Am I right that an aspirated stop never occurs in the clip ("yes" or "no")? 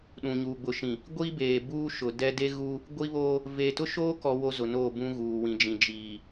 yes